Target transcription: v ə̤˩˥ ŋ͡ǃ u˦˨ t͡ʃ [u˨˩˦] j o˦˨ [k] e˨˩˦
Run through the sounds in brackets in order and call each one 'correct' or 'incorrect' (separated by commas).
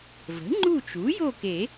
incorrect, correct